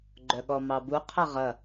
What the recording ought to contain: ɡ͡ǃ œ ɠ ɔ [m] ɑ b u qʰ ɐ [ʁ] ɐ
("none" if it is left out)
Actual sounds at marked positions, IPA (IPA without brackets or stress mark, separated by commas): m, ʁ